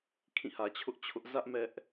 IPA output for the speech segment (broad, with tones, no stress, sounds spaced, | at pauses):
kʰ ĩ˦˨ h ä˨ t͡ɕʰ ʊ˦ ʔ t͡ɕʰ ʊ˦ ʔ z ä˦ ʔ m ɛ˦ ʔ